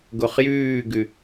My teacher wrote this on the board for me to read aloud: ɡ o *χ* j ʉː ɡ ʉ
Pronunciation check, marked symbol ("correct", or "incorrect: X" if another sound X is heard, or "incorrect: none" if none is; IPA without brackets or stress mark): correct